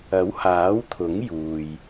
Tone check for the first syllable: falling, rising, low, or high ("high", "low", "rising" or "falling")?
rising